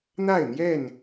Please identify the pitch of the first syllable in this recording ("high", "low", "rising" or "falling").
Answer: falling